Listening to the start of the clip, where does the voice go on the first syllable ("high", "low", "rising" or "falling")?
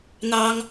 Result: high